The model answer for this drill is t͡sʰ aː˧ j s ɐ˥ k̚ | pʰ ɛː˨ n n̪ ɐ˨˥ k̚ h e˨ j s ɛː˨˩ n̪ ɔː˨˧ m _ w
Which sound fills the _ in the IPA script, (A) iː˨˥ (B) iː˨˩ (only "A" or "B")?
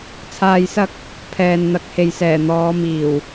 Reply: B